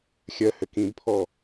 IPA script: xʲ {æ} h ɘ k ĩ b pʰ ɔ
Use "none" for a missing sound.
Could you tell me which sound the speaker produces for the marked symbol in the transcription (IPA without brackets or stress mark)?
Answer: ɜ